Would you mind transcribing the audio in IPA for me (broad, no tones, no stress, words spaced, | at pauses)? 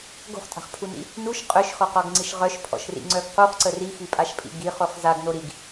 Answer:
ɡo̤χtʼa̤χpʰunḭ | nuʃ qʼøʃxɔqɔɡŋ͡ǀiʃ ʁœʃpʰɔ̰ʃrḭŋ͡ǀœɡ quχǀə rixipʼaʃpʼḭ ɡiχoχ zaɡno ɾiɡ